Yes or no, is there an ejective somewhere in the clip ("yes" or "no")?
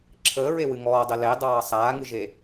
no